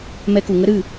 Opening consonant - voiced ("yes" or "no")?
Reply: yes